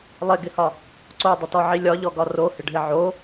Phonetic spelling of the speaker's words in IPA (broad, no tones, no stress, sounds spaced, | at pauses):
lˠ ɪ ɡ ɪ h ɒ | ǀ o dˤ ɪ t ɔ ʕ i lʲ ɒ ʎ ɔ ɡ ɒ r o h ɪ ɖʱ ɪ ʕ o